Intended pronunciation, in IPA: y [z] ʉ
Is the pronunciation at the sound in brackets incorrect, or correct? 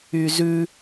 correct